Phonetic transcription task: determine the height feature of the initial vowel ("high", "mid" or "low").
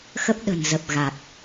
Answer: mid